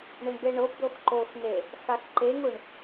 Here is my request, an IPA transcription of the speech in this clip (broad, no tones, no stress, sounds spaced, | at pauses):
ɳ ɛ ɳ b e ɳ o b d̪ o x ǃ o x n e | x a x ǃ e ŋ u ɳ